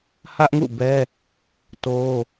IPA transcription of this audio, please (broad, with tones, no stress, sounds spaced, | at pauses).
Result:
h ä˦ ʔ ŋ ṵ˦˨ b ɛ˦ | t o˦